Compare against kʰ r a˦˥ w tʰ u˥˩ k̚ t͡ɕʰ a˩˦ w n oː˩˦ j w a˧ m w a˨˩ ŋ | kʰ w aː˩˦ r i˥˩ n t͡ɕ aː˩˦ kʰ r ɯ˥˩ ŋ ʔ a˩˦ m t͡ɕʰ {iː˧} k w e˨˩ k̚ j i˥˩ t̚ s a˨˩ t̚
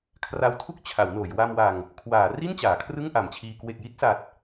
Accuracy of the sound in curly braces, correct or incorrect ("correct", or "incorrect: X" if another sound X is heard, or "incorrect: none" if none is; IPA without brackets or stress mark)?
correct